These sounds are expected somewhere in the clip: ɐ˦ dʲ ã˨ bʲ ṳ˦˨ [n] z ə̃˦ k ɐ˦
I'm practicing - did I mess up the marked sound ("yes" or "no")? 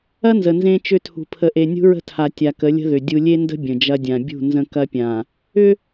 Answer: no